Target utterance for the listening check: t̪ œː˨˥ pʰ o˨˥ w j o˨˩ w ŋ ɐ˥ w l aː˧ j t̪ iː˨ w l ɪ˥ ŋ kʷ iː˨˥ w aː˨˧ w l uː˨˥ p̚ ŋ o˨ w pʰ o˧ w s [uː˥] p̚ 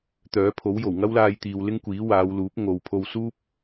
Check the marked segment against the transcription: correct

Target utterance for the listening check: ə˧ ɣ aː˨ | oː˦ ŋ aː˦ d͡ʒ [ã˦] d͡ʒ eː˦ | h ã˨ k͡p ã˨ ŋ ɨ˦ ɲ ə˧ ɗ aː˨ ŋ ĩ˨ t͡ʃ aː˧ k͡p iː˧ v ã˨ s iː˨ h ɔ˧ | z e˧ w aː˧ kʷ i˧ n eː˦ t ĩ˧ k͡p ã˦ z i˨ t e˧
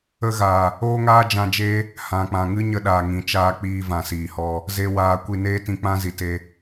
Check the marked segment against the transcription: incorrect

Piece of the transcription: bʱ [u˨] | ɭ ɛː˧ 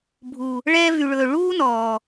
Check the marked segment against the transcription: correct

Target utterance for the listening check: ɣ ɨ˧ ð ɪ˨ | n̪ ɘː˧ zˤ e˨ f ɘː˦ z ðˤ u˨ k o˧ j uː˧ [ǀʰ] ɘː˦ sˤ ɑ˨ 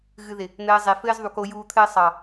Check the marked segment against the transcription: incorrect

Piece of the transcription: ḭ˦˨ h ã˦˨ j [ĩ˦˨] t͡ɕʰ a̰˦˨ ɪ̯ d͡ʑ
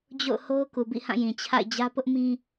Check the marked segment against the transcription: incorrect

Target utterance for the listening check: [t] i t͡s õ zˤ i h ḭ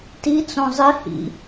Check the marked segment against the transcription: correct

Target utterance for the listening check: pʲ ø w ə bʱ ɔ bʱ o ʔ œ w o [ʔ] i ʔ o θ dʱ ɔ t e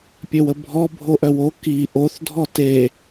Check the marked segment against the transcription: incorrect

